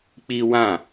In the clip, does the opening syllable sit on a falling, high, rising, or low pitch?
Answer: high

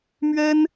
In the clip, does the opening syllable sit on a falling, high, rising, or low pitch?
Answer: high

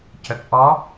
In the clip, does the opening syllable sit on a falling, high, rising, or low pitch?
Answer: low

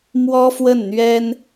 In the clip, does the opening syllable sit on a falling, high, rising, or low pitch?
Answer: high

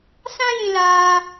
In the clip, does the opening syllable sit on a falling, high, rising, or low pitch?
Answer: high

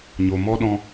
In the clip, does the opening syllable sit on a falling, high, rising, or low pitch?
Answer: low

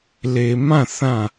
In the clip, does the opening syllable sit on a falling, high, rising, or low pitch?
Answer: low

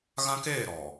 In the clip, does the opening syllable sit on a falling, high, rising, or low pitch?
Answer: high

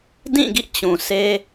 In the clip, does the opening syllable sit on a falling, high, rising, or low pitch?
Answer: falling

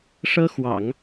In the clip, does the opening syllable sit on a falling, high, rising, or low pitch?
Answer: high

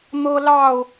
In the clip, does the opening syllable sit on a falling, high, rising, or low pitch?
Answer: high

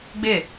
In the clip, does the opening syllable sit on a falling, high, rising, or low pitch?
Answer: falling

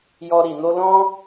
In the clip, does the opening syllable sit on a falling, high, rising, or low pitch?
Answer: high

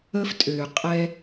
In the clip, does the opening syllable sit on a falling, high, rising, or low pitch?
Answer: high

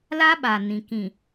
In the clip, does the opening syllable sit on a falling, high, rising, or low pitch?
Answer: high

